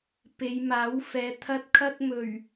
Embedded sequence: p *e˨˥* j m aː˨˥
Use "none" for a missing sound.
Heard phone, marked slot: e˨˧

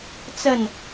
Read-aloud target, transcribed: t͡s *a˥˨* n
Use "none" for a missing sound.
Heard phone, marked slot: ə˥˨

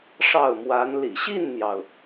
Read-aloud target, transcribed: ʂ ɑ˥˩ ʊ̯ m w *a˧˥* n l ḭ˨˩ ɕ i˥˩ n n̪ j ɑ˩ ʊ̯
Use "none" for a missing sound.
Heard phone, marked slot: a˧˥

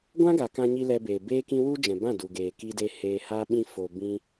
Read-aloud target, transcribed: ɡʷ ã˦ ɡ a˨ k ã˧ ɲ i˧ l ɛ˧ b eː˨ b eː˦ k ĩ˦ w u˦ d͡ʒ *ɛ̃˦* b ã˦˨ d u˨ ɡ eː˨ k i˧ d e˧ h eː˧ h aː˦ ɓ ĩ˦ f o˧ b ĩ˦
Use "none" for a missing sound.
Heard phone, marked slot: ɛ̃˨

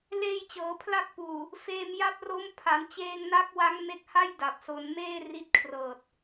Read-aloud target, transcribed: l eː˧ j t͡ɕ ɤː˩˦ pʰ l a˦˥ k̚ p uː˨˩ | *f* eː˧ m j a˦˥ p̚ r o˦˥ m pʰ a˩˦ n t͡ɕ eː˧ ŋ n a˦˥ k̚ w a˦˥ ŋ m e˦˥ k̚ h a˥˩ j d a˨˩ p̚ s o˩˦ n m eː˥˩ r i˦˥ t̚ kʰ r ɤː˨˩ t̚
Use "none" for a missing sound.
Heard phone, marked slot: f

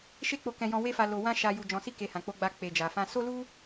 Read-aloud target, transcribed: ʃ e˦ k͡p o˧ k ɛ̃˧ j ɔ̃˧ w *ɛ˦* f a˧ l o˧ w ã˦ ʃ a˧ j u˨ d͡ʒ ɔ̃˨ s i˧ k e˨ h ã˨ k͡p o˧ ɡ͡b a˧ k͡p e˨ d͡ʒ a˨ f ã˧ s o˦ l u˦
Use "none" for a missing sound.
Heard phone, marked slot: e˦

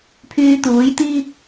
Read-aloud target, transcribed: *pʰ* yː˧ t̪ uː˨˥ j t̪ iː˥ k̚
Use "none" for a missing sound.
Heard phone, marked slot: pʰ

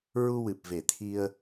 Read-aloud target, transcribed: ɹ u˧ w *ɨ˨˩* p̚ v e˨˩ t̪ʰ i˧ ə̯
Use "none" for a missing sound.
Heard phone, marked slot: ɨ˨˩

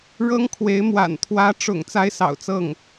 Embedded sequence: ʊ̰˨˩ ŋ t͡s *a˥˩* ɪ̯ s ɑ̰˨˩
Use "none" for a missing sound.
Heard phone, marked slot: a˥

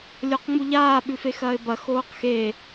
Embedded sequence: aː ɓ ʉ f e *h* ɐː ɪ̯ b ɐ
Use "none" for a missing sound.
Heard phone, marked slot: x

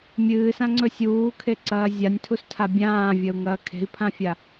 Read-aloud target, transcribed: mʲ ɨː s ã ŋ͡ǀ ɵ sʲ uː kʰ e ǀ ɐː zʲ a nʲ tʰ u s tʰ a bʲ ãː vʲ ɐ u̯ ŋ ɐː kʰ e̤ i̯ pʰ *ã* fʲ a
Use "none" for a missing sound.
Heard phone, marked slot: ã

